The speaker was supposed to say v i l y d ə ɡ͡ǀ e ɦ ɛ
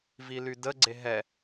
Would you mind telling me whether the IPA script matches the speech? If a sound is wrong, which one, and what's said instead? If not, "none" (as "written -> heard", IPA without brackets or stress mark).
none